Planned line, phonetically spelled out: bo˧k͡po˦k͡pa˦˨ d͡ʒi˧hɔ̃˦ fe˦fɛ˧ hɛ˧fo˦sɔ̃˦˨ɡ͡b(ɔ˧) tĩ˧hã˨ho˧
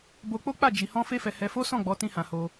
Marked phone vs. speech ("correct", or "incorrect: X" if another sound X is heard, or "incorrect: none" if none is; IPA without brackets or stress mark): incorrect: ɔ˨˦